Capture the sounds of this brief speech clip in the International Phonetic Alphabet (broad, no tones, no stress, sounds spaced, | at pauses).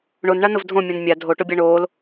ɳ o n ɳ a n ʊ v dʱ õ mʲ õ n mʲ a dʱ o ʈ o bʲ a ɳ oː l